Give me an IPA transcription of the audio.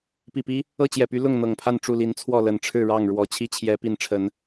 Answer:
p i˨˩ p i˦ | ɤ˥˨ t͡ɕ j ɛ˨˩ p y˨˦ l ʊ˥˨ ŋ n̪ ɤ˨˩ ŋ pʰ a˥˨ n ʈ͡ʂ u˥˨ l i˨˦ n t͡sʰ w ɔ˥˨ l ə˨˩ n ʈ͡ʂʰ ɻ̩˥˨ ɻ ɑ˥˨ ŋ ɻ w ɔ˨˦ t͡ɕʰ i˦ t͡ɕʰ j ɛ˨˦ p i˨˦ n ʈ͡ʂʰ ə˨˦ n

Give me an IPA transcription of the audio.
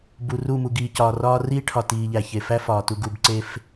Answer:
b u˨ r u˦˨ m u˨ ɡ iː˨ c ɒː˨ r ɒː˧ r iː˦ ʈʰ ɒ˨ t iː˨ ʎ æ˨ ç e˨ f æ˦ f ɒː˨ t u˧ ɡ u˧ b ǀ e˦ f

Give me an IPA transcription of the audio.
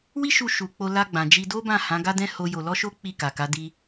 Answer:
w i˦ ʃ u˧ ʃ u˧ k͡p o˧ l a˧ ɡ͡b ã˨ d͡ʒ i˧ d o˦ b ã˦˨ h ã˨˦ ɡ a˦ d ɛ̃˦ h o˦ j o˧ l ɔ˦ ʃ o˦ k͡p i˦˨ k a˨ k a˨˦ d i˧

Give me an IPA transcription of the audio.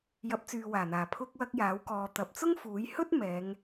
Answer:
j ɐ˨˥ p̚ t͡s yː˨ w aː˨˩ n̪ aː˨˩ pʰ ʊ˧ k̚ w ɐ˧ k̚ j aː˨˥ w k ɔː˨˧ t̪ ɐ˨ p̚ t͡s ʊ˥ ŋ f uː˨˥ j h ɵ˥ t̚ m ɛː˨˧ ŋ

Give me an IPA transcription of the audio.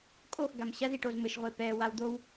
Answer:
kʼ o x ɡ a m ɕ ɐ z i ʈ o z m ɘ ʃ ʁʷ e p ɛ w a w d̪ o w

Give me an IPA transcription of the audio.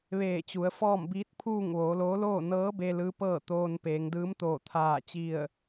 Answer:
ʋ eː˧˩ t͡ɕ u˩˧ ə̯ f ɔː˥˨ m b iː˧˥ t̚ pʰ uː˥˨ ŋ ʋ oː˩˧ l oː˧˥ l oː˥˨ n ɤː˧˥ b e˧ l ɯː˧˥ p ɤː˥˨ t̪ oː˧ n p eː˩˧ ŋ d ɯː˧˥ m t̪ oː˧˩ t̪ʰ aː˧˩ t͡ɕ i˧˩ ə̯

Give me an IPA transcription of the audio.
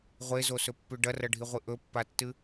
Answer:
ʁʷ e z o s ɵ pː ʉ ɖ ɐ r ɐ ɖʱ i ʁʷ ɨ ʔ ɵ pː a tː ɨ

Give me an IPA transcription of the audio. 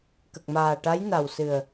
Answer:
k ə˨˩ k̚ m aː˨˩ ʈ a˧˥ j n a˨˩ w s ɨ˨˩ ə̯

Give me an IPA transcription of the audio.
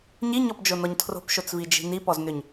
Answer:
ɲ i ɲ ɔ p d͡ʒ o n ɔ ɲ tʰ r o̤ p ʃ o t͡s v i d͡ʒ i̤ n i p ɔ z n ʏ ɲ

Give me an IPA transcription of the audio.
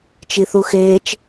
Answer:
t͡ʃ i θ u x eː t͡ʃ

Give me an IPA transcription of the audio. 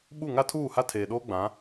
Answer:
ɓ u˦˨ ŋ a˦ tʰ uː˦˨ h a˦ tʰ eː˨ ɗ oː˦ ɡ͡b ã˨˦

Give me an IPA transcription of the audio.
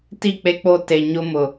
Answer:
t i˦˨ k͡p e˦ k͡p o˦ t e˨ ɲ ʊ˦ m ʊ˨

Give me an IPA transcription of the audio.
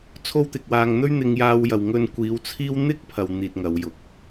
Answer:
t͡sʰ o˥ w t̪ ɪ˧ k̚ w aː˧ ŋ n̪ ɵ˥ ɥ n̪ ɪ˧ ŋ j aː˧ w j ɐ˨ w ŋ ɵ˧ n kʷ iː˨˧ w t͡sʰ iː˥ w n̪ ɪ˥ k̚ pʰ ɐ˨ w n̪ iː˧ t̚ ŋ ɐ˨˧ w j ʊ˨˥ k̚

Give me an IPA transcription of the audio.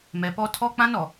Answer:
m ɛ˨ p ɔ˦ tʰ ɔ˦ k͡p ã˦ n ɔ˨

